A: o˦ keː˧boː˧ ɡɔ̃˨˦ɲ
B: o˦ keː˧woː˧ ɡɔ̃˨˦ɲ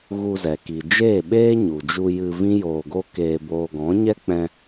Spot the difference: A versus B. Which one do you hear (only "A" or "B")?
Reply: A